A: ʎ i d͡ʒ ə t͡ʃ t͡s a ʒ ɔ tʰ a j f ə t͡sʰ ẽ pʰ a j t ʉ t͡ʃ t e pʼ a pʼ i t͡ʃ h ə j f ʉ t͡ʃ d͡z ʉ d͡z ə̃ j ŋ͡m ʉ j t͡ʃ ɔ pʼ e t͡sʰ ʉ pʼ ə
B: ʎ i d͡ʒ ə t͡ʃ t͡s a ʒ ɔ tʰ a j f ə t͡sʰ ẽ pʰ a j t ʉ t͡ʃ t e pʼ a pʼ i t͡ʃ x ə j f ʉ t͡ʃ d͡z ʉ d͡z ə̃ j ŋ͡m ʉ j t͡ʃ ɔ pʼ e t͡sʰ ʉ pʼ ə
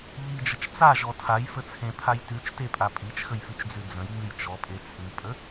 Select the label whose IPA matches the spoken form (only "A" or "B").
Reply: B